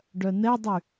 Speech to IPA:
ɖ œ n ɛ dˤ y

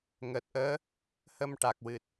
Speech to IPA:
ŋ əː˨˩ t̚ ʔ əː˧˥ | h ə˧ m ʈ a˨˩ k̚ w ɨ˨˩ t̚

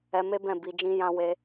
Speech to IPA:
ɛ˧ m e˦ b ɛ̃˦˨ b i˧ d͡ʒ ĩ˦ j ã˦ w e˦

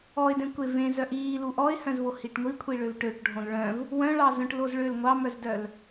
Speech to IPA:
ɔ ɪ̯ d ẽ kʷ e v ẽ z œ ʔ iː l u ʔ ɔ ɪ̯ h œ̃ z v o h i ʈ ŋʷ i kʷʰ i ɭ ø v ʈ ø ʈ ɖʱ õ l ɭ œ̃ v | w œ̃ ɭ ɑ z œ̃ ʈ l o z ɭ ø l ŋʷ ɑ m œ z d œ l

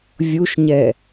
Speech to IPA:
vʲ u ʃ ɲ ɛ

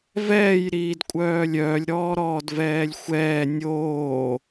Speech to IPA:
v ɛː j ɾ iː d kʷʼ œː lʲ œː lʲ ɾ ɔː ɾ ɔː d v ɛː lʲ xʷ ɛː nʲ oː

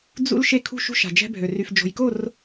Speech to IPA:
d͡z ṵ˦ l ʃ e˦ kʰ ṳ˦ ʃ ṳ˦ ʃ a̤˨ d͡ʒ ɛ̤˦ bʱ ø˨ r y˨ f d͡ʒ o̤˨ j k o˦˨ r

